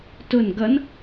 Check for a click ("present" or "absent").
absent